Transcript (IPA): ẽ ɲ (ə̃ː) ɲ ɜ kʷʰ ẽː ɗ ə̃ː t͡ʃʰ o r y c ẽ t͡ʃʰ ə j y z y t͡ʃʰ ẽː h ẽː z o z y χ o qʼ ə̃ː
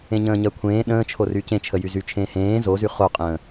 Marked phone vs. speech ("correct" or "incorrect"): correct